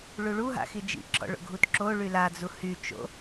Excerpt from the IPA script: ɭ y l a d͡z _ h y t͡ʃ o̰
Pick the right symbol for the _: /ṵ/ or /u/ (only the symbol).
u